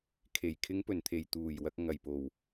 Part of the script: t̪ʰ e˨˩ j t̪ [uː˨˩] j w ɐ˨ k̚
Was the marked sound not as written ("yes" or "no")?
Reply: no